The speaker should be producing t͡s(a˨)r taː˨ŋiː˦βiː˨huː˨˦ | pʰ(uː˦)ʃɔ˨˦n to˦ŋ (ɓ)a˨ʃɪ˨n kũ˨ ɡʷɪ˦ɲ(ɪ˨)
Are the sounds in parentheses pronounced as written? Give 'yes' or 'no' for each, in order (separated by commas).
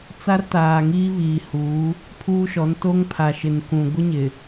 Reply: no, yes, no, yes